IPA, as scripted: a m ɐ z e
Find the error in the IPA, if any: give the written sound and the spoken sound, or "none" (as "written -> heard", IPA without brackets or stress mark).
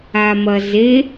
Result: none